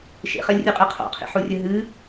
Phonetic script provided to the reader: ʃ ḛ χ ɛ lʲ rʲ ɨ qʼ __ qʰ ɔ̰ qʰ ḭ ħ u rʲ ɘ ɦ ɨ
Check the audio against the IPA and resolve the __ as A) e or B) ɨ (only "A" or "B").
B